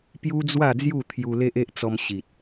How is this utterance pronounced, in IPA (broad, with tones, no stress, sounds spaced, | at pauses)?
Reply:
p j u˦ d͡z w a˥˧ d͡z j u˥˧ t̪ʰ j u˧ l e˦ ʔ e˦ ʔ t͡s ɔ˧ m ɕ i˨ t̚